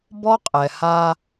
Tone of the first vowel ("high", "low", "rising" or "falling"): high